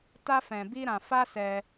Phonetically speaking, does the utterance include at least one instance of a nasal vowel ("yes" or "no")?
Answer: yes